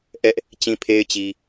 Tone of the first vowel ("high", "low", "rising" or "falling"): high